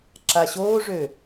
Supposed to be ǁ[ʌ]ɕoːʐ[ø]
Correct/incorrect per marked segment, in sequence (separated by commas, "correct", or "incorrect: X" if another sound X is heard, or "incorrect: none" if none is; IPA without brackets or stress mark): incorrect: a, correct